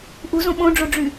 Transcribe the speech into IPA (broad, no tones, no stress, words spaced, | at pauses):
ʔuzõ ɓõɖ͡ʐoɖ͡ʐy